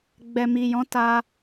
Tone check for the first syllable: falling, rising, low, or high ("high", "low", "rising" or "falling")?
low